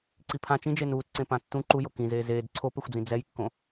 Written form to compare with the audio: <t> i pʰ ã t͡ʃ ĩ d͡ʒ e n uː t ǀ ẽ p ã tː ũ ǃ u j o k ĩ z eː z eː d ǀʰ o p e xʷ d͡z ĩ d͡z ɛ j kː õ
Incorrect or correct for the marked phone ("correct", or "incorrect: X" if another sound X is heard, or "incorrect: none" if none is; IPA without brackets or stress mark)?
incorrect: ǀ